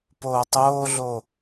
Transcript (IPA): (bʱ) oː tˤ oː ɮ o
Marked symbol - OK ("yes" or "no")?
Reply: no